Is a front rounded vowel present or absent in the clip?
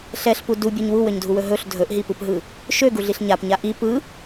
present